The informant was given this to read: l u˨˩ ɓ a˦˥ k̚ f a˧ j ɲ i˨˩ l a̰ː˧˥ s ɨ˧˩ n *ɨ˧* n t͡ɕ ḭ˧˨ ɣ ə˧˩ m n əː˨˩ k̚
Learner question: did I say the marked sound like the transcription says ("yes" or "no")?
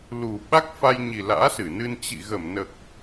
yes